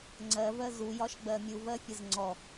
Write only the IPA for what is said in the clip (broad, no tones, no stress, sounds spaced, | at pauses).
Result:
ŋ͡ǀ ɜ v ɜ z u j ɒ ʃ ɡ͡b ɜ mʲ u v ɜ fʲ ə z ŋ͡ǀ ɔ